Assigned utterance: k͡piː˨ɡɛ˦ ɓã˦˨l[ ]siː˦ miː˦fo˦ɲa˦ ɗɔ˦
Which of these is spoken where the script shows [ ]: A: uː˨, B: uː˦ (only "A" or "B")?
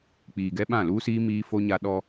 B